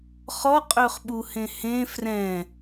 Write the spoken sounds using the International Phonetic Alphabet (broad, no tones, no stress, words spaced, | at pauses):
χɔqʼøχɓuhẽ hẽ frɛ̃